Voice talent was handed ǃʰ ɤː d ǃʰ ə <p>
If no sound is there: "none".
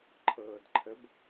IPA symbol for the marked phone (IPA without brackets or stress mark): b